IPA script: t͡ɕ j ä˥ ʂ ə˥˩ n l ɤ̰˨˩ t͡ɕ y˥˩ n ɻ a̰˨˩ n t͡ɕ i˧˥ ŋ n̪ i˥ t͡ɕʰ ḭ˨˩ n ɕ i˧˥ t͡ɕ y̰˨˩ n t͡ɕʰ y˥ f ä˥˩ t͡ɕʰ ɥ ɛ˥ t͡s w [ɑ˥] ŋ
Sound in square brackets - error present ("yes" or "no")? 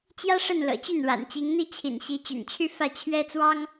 no